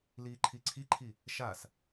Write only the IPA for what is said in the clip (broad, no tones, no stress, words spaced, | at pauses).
liːǃʰiǀʰiǃʰi | ʃas